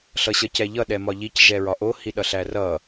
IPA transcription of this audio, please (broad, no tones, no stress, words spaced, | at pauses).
ɬʌɕʌcɛʎʌ ɗɛmɒʎic ʒɛɹɒʔo hiɗʌɬærʌ